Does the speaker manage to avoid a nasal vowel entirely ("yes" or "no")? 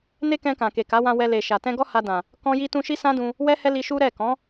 no